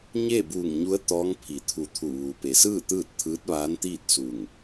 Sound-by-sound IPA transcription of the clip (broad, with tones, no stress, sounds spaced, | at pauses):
ɲ eː˥˨ b uː˧˩ ŋ ɲ u˧˥ ə̯ t̪ ɔː˧˥ ŋ pʰ i˩˧ t̪ʰ u˧˩ t̪ʰ u˧˩ ʋ uː˩ p e˩˧ s ɯː˥˨ t̪ ɯː˥˨ t̚ t̪ʰ ɯː˧˥ t̚ ʋ aː˧˥ n t̪ iː˥˨ t̚ s u˧˩ ŋ